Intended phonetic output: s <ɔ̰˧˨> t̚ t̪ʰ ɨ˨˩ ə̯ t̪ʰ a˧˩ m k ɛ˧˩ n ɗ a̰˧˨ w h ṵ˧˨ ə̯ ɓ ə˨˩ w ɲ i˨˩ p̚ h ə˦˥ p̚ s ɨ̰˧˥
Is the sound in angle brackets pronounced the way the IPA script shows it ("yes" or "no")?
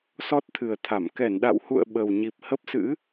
no